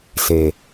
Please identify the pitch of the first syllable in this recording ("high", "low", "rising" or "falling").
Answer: low